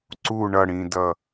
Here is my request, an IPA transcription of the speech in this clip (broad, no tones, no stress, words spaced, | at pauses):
ǀu ɳʌɽĩdʌ